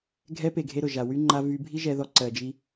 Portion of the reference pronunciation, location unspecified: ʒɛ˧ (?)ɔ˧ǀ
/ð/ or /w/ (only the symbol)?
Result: ð